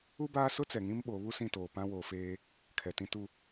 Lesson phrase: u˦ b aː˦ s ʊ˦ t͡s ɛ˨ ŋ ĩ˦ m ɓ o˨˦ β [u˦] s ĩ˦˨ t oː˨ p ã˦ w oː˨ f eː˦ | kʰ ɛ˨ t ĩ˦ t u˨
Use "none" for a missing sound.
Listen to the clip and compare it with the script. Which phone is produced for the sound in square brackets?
u˦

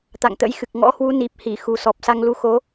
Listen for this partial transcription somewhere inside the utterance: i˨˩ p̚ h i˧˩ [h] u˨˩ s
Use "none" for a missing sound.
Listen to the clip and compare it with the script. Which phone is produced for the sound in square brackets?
x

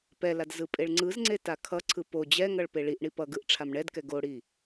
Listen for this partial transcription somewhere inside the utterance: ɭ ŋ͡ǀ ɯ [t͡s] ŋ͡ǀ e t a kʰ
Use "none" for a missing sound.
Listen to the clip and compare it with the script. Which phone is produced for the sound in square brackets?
z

